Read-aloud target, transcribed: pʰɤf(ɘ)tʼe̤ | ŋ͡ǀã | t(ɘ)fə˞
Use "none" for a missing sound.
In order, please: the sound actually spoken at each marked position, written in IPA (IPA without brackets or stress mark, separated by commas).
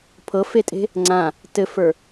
e, ɘ